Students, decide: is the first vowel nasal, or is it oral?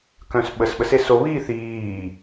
nasal